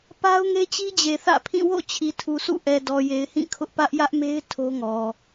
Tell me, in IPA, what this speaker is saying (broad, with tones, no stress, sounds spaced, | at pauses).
p a˦ ʊ̯ ŋ e˦ t͡ɕ i˦ d͡ʑ e˨ θ ä̰˦˨ pʰ ĩ˦˨ w o̰˦˨ t͡ɕʰ i˨ tʰ u˨ sʰ ṵ˦˨ ʔ ɛ˨ d ɔ˨ j e˨ ɪ̯ h ĩ˦˨ kʰ ʊ˦ ʔ p ä˦ ʔ j ä˦ ʔ m e˦ ɪ̯ tʰ o˦ ŋ ɔ˨